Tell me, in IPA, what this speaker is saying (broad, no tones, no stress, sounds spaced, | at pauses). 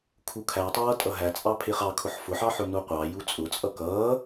kʰ u kʰ æ tˤ ʌː tʼ ʌ ɦ æ t͡sʼ ɑ pʰ ɪː χ ɑ kʰ ʊ ħ f ʊ ħ ɑ ħ ʊ n u qʷ ɑ j u t͡sʼ ʊ t͡sʼ ʌ k ʌː